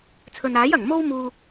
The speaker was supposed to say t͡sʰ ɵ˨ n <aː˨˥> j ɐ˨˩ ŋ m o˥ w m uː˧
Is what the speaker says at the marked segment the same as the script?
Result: yes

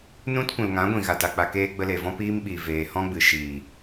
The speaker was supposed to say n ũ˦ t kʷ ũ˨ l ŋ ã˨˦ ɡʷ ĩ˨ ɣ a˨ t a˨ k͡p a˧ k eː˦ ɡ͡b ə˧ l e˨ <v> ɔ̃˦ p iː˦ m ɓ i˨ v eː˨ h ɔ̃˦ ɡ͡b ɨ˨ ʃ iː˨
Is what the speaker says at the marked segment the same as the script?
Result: yes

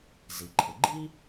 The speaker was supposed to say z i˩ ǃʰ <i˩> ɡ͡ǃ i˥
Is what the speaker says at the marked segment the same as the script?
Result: no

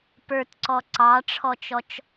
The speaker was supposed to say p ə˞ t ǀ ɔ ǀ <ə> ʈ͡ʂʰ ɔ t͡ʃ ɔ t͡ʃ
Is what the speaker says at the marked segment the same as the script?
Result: no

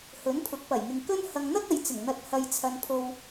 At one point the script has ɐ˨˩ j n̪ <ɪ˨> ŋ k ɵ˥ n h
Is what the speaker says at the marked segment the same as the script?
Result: yes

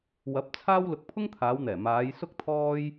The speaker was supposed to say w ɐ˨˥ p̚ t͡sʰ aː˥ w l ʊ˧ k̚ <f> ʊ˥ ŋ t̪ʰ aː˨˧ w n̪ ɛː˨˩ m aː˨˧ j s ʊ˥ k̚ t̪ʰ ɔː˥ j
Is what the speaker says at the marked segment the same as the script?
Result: no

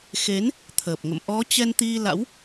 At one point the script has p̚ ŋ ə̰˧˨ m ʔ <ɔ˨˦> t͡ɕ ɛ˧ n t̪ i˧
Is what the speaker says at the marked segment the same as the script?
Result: yes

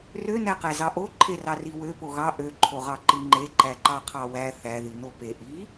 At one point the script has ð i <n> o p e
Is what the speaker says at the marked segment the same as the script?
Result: yes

